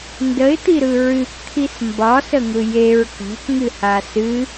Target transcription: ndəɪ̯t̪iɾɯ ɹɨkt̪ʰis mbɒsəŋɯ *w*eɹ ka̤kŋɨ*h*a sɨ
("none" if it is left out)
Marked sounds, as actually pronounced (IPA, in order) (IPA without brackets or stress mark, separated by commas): j, h